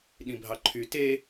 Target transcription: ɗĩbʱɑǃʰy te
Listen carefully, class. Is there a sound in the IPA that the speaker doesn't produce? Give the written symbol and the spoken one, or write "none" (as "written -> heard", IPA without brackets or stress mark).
none